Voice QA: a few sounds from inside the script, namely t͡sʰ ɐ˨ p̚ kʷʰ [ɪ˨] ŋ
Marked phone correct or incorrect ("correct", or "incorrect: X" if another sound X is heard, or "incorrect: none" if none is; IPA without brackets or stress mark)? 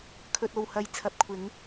incorrect: ɪ˨˥